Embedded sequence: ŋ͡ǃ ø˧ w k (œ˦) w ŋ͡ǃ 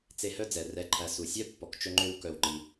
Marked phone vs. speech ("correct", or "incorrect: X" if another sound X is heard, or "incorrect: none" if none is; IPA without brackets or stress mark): incorrect: œ˧